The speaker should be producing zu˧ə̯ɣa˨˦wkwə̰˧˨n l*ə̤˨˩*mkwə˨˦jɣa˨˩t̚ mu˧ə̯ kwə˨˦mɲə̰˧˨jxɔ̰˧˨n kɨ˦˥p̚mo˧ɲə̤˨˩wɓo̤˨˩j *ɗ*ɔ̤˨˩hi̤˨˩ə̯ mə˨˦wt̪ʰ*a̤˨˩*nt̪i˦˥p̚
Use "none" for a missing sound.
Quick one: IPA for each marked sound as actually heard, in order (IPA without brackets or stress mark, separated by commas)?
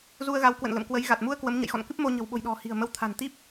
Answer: ə̰˧˨, ɗ, a̤˨˩